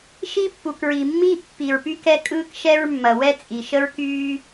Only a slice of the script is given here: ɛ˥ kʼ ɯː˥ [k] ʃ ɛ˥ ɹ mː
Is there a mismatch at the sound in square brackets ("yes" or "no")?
no